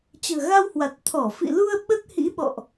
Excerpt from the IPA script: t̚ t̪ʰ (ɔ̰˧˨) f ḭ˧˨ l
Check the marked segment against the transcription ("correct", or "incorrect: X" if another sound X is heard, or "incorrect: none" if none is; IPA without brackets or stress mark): incorrect: ɔ˧˩